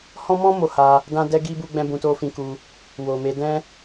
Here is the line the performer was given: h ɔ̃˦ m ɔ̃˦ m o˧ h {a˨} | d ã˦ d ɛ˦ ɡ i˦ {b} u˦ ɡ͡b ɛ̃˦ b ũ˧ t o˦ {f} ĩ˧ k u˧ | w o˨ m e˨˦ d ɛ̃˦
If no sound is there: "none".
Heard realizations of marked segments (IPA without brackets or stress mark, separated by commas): a˧, b, f